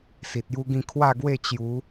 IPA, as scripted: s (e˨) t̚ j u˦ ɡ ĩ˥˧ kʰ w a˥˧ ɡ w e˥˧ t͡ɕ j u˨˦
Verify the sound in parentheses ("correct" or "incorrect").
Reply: incorrect